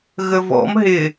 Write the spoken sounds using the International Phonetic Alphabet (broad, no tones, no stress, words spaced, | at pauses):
ɣəvɔ̰m ɦɪ